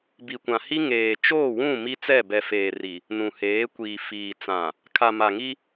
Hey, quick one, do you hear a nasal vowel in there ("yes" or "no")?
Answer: yes